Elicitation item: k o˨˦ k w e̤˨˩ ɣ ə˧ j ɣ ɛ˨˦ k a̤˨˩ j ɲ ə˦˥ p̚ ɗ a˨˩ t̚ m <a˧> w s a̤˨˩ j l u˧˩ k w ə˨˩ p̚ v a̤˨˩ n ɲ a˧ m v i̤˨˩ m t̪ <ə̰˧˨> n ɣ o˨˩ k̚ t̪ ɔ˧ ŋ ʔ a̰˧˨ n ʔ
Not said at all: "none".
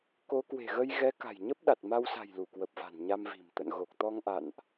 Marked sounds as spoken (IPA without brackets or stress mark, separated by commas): a˧, ə̰˧˨